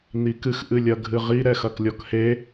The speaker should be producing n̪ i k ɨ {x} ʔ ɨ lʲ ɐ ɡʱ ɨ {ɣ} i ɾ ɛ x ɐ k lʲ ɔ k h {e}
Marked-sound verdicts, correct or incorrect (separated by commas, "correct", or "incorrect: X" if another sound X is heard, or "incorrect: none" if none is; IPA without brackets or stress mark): correct, incorrect: ʁ, correct